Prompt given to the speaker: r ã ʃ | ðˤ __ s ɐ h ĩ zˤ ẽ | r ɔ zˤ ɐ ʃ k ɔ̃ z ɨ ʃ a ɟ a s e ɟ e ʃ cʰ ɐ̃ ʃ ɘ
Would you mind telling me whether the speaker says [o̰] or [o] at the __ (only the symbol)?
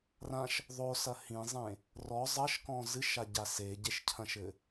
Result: o